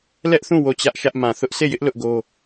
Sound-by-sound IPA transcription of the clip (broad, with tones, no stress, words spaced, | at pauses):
lɛ˦ʔθũ˦˨ wo˦˨t͡ɕä˦ʔʃä˦ʔ mã˨θʊ˦ʔ se˦˨jɪ˦ʔ lʊ˦ʔɡo˦